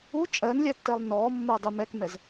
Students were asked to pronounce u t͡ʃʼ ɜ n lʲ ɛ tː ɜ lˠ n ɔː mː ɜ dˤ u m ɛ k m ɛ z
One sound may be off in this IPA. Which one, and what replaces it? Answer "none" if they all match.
none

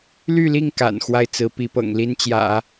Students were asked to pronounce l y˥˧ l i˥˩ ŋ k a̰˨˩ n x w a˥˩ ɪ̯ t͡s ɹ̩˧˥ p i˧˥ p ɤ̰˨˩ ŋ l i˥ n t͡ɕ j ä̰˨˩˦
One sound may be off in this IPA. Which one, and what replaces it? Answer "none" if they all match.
none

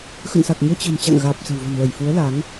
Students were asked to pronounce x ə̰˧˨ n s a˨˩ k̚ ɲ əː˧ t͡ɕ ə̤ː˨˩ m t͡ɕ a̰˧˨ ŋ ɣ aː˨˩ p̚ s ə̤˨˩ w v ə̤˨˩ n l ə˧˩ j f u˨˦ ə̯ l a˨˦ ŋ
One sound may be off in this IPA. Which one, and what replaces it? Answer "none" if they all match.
none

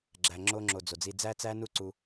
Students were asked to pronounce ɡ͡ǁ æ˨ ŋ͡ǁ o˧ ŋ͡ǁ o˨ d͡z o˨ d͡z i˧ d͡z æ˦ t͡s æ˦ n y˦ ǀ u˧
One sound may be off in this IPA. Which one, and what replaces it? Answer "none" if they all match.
y˦ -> u˦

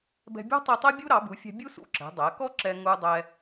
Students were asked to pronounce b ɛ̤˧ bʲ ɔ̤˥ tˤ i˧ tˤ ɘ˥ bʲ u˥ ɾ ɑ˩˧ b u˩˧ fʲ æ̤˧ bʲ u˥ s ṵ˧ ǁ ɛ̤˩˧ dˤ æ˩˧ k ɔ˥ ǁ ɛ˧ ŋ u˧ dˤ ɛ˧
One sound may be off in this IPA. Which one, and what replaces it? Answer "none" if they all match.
ɘ˥ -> ɛ˥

